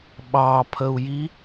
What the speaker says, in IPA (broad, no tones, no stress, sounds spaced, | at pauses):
ɓ ɑ pʰ ə u̯ j i